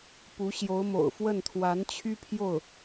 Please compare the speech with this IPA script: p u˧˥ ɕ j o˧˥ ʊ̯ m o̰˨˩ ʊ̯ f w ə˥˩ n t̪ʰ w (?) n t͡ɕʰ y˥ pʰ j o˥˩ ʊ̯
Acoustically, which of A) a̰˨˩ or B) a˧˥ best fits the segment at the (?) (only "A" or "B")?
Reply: B